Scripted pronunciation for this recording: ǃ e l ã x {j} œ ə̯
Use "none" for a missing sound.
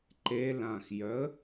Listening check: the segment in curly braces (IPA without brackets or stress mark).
j